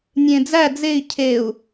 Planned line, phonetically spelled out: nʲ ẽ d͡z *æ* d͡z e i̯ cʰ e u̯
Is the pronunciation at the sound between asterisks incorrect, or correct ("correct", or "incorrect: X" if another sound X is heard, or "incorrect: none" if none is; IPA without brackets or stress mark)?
correct